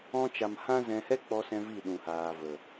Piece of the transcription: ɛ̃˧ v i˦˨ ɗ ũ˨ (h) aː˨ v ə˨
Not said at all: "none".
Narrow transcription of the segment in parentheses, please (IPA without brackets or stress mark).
h